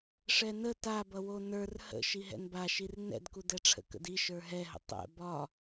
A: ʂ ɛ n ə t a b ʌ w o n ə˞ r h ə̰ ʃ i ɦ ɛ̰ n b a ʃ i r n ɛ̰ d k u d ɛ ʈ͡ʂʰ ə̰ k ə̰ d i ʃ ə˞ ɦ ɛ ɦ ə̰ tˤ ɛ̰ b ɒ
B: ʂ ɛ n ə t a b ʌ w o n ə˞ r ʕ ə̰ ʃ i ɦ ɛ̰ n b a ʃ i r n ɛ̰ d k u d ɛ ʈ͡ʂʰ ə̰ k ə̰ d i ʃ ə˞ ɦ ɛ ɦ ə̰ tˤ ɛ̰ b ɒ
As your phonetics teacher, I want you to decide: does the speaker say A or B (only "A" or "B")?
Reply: A